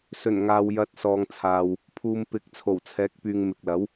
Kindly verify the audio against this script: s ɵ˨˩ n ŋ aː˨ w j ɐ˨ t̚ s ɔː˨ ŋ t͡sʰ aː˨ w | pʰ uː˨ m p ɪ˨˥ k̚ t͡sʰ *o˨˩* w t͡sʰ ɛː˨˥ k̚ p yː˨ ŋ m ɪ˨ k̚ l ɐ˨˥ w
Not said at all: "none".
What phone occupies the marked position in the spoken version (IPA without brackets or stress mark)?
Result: o˨˩